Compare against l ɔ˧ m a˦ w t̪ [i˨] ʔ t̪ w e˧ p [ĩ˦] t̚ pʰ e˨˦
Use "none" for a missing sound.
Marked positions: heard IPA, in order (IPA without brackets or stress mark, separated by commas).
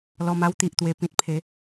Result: i˨, ĩ˨